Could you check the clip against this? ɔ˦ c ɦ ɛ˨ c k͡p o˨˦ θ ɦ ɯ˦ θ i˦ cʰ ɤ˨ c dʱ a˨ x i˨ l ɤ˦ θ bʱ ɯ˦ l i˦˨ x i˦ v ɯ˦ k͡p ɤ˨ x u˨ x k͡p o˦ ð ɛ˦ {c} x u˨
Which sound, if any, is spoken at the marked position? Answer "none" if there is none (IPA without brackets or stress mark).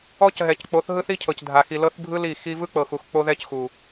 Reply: c